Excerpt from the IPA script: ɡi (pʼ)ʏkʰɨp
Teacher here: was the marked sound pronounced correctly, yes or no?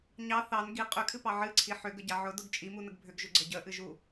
no